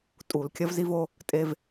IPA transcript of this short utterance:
tʼ u˧˩˧ l kʲ ɐ˦ v z i˦ v o˦ | tʼ e˦ v

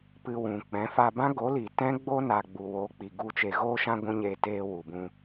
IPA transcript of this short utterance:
p ɨ˧ w ũ˨ k͡p ɛ̃˨˦ f a˧ b ã˦ ɡ o˨˦ l i˨ t ɛ̃˦ ɡ͡b o˦ n a˨ ɡ͡b u˨ w o˨˦ k͡p i˨ ɡ u˧ t͡ʃ e˨ ɣ oː˧ ʃ ã˧ ɡʷ ũ˧ ɲ eː˧ t eː˧ w u˨ b ũ˧

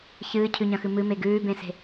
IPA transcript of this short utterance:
ç ɨː cʰ ʉ ɲ ɐ̃ x ɨ m ɨ m e ɡ ʉː b ẽ s e̤

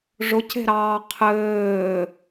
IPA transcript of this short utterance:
ʐ ʊ c e̤ ɾ ɑː qʰ ɘː

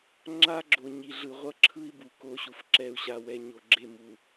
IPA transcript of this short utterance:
ŋ͡ǁ a˦ ɡ͡ǁ o˨ ɲ i˨ ɮ ɯ˨ ʁʷ ʌ˦ ǁʰ ɯ˦ i̯ b u˨ k o˦ ɕ u˨ f ǁ ɛ˨ u̯ ɕ a˨ w ɛ˨ ɲ o˨ ɡ͡ǁ e˦˨ m u˨

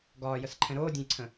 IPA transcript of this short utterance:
ɡ ɒː j ə s ǃʰ ɛ̃ ɾ oː dʲ ɛ̃ j ǀʰ ə̃

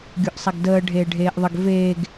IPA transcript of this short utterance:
ɡʲ o ʔ sˤ a ɡ d əː ɖʱ eː ɖʱ eː ʔ ðˤ ə ɡ v eː ɡ

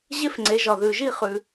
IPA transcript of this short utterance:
ʑ e˥ f ŋ͡ǀ e˨˦ ʒ ɒ˨ ð ʉ˨ ʒ i˥˧ χ ʉ˨

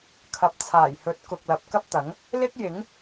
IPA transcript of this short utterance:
kʰ ɐ˨ p̚ t͡sʰ aː˨˩ j h ɵ˨˥ t̚ k ʊ˨ k̚ l ɐ˨ p̚ k ɐ˥ p̚ t̪ ɐ˨˥ ŋ | l ɪ˥ k̚ j ɪ˨˥ ŋ

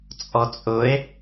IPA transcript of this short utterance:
t͡sʼ ɔ t͡sʼ ʊ e̯

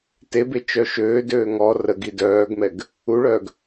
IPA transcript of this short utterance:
t e b e t͡ʃ œ ʃ øː d øː ŋ ɔ r ə ɡ i d œː ɡ m ɛ ɡ | u ɭ œː ɡ

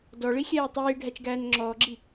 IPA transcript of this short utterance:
d ɔ ɭ i xʲ ɛː tˤ iː ɖʱ æ t͡ʃ ɡ æː n ŋ͡ǁ ɔː ɡ͡ǁ i

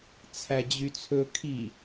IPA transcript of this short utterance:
t͡sʰ æ d͡ʑ y t͡sʰ ɵ kʰ i

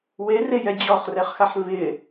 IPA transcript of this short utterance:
w e r e j ɛ d͡ʑ ɔ χ r ɛ χ x a ħ v ɪ

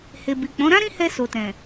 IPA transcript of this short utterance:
h e˨ b i˨ k͡p ɔ̃˨˦ ɾ ã˦ ɾ ĩ˦ h ɛ˧ s o˨ t ɛ̃˨

